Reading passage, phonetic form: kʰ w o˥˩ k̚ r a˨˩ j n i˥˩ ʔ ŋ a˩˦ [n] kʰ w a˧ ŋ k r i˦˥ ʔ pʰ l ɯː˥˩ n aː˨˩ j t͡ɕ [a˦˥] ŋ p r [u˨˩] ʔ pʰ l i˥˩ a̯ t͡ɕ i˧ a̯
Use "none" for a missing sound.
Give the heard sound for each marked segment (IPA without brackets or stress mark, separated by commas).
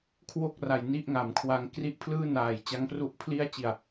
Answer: m, a˦˥, u˥˩